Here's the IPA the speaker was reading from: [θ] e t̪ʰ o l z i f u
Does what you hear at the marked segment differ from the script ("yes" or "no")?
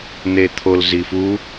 yes